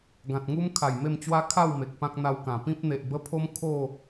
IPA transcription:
ɡ ã˨ t̚ ŋ u˦ m kʰ a˨˩ j m e˥˧ m t͡ɕ w a˦ kʰ a˥˧ w m e˨ k̚ p ã˦ k̚ n̪ a˧ w k ã˨˩ p ĩ˦ p̚ n̪ e˨ ʔ b ə˦ pʰ o˦ m kʰ o˥˧

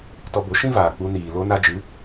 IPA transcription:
t ɔ˧ b o˨˦ ʃ ĩ˦ v aː˨ k͡p u˧ n iː˨ l o˧ n a˧ d͡ʒ ɨ˨˦

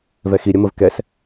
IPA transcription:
v ɛ x i ɾʲ ə m ə v k ɛ s

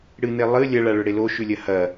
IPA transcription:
ɽ ɨ n e lˠ ɨ lʲ ɐ ɭ a ɭ ɵ ɽ e l o ʃ ʉ lʲ ɐ h ɐ

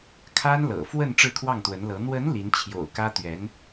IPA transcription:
kʰ a˥ n l ɤ̰˨˩ f w ə˥˧ n ʈ͡ʂ ɻ̩˥˧ kʰ w ɑ˥˩ ŋ t̪ w ə˧˥ n l ɤ˧˥ n̪ w ə˧˥ n l i˧˥ n t͡ɕʰ j o̰˨˩ ʊ̯ k ä˥ t̪ ɥ ɛ˧˥ n

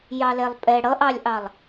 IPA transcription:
j ɑ l ɛ lˠ pʼ ɛ ɽ ʌ ʔ ɑ lʲ ʔ ɑ lˠ

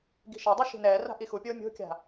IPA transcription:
ɡ i̤ ʃ a dˤ u ʃ i̤ n ɛː r a̤ ʔ i x u pʲ oː mʲ o̤ kʲ a̤

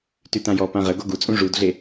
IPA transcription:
t y t ã j ɔ p ã ʁ ə ɡ o ɡ u t͡sʼ ũ ʐ u d ɮ e

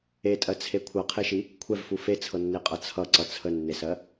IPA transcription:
e tʼ ɜ t͡sʰ e kʷʰ ɤ qʰ e ʃ i | kʷʰ ɛ v f u f e t͡sʰ ɤ nː e qʼ ʌ t͡sʰ ʌ ǀ ʌ t͡sʰ ə nː e s ɜ

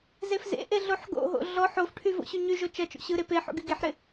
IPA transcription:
z e f z ḛ ʔ e ɮ o ħ ɡ o̰ ɦ o̰ ɮ ɔ ħ o f ʈʰ y v o̰ ɕ y ɲ y ʒ o t͡ʃ ɐ t͡ʃ o̰ ɕ ɯ ɾ e p e ħ o̰ ɡ y ɡ e ħ ɾ ɪ

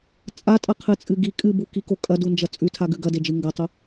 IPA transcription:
t͡sʼ a tʼ ɐ qʰ ɨ t͡sʼ ɨ ɡ i kʼ ɨ b u k i k o kʼ ɐ d u n d͡ʒ ɐ t͡sʼ ʉ tʰ a ɡ ʉ ɡ ɐ d e d͡ʒ ɨ ŋ ɡ ɐ tˤ u

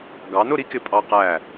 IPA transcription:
ɡ ɑ˩˧ n ʊ˥˧ ɾ i˥ k ɪ˧˩ pʼ ɑ˧ q æ˧˩

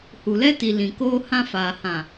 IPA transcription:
h u˨ l ɛ˦ t i˨ l ĩ˨ k oː˦ h ã˦ f aː˨ h ã˨

